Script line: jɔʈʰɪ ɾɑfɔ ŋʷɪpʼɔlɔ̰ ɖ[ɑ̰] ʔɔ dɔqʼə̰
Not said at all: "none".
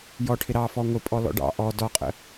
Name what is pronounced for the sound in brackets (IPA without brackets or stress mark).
ɑ̰